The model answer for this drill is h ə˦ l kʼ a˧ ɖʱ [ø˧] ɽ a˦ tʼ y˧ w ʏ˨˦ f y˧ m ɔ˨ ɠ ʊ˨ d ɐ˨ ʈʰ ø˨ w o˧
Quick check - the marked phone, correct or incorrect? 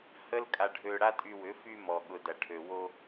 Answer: correct